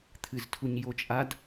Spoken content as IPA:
t̪ʰ ɨ z tʰ u ɲ j o t͡ʃʼ a d

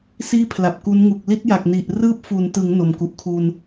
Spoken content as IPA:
s iː˥˩ pʰ l a˨˩ p̚ k u˦˥ n ŋ u˨˩ k̚ l i˦˥ t̚ j a˨˩ k̚ n i˨˩ ʔ r ɯː˦˥ p̚ f u˩˦ n t ɯ˩˦ ŋ n o˨˩ m k u˨˩ ʔ kʰ u˧ n

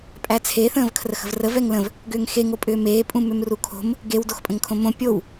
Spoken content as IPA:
pʼ æ t͡sʰ e θ ə̃ː v kʰ r ə x ə̤ v r ə v ɛ ŋ l ə̃ v | ɡ ʏː ŋ x e ŋ o pʼ ʏː m eː pʼ ũ m ʏ m r u kʰ o̤ m | ɡ e w d o x pʼ ə̃ ŋ kʰ õ m õ pʲ o w

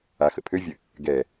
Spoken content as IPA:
a x ə̰ pʰ ø vʲ ə | ɡ ɛ

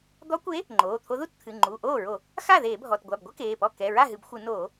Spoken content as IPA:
d̪ ɔ˧˥ kʷ e˧˥ | ŋ͡ǃ oː˩˧˩ t̪ʰ o˧˥ ð u˥ t t̪ʰ ɨ˩˧˩ ŋ͡ǃ u˩˧˩ ʔ oː˥˩ ɹ o˧˩˧ | x a˥˩ ð eː˧˩˧ bʱ ɔ˩˧˩ t ɡʷ a˩˧˩ b ɡʷ ɘ˥ k eː˩˧˩ p ɔ˥˩ k ɛ˩˧˩ ɹ a˥˩ ɦ ɨ˧˩˧ b xʷ ɨ˧˩˧ n oː˧˩˧

